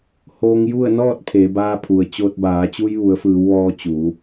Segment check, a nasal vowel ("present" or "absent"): absent